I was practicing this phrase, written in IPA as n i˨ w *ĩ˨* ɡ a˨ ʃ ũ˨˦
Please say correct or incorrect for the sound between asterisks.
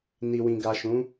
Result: correct